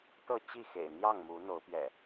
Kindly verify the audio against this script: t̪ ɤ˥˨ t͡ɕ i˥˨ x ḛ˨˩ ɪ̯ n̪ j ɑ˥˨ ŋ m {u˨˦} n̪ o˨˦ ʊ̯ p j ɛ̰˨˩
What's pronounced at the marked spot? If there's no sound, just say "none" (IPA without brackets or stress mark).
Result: u˨˦